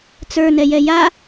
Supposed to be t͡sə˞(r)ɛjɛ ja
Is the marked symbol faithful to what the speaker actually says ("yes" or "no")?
no